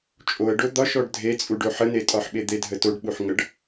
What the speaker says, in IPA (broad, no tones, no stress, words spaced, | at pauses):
t͡ʃʼoə̯ɖo d̪ɒʃɔɖ dʱet͡sʼuɖo ħənetʼɒħɓe d̪edʱətoɖɓuħ ŋəɖ